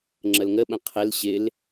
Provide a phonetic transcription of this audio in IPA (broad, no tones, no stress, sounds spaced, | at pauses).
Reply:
ŋ͡ǁ ə l ŋ ə ɓ ə̃ qʰ ɪ l ɕ ɪ l